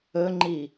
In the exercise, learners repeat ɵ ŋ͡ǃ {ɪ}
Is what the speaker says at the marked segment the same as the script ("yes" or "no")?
no